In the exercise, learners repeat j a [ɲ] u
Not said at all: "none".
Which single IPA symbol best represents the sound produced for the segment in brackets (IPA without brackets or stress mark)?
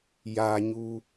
ɲ